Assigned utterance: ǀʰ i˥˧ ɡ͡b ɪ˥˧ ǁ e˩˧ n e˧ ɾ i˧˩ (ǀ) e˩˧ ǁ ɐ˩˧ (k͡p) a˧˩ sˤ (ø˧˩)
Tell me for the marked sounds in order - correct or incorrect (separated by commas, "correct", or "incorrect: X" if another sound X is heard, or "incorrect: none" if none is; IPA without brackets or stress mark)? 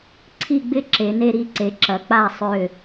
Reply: correct, correct, correct